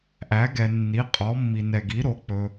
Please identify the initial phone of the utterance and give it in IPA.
ʔ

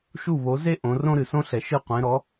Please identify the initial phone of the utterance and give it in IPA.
ʃ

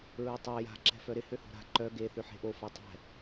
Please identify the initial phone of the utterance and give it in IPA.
ɹ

